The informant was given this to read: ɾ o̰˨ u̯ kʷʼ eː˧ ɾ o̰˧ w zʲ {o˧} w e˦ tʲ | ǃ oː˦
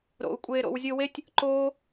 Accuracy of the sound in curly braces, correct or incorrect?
correct